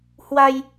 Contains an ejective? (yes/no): no